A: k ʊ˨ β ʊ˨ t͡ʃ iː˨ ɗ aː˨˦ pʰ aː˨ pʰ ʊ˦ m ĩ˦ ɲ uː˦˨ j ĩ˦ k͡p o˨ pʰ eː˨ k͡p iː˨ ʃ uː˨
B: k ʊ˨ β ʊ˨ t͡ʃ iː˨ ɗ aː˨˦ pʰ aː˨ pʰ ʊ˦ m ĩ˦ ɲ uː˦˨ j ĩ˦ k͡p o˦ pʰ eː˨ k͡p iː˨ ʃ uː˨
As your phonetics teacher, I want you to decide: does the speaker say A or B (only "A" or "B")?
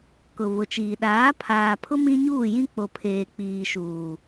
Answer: A